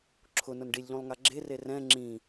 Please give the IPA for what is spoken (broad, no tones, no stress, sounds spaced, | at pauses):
ǁʰ ʊ n ʊ n ɖ i lʲ ʎ ũ lˠ ŋ a ɡ͡ǁ e r e r ɛ̃ ŋ͡ǁ ĩ